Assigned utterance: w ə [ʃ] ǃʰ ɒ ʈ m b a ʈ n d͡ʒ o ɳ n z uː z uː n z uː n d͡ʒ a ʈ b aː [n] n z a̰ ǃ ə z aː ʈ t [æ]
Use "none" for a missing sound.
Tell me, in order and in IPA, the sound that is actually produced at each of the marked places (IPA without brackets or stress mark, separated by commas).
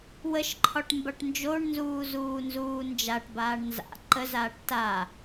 ʃ, ɳ, a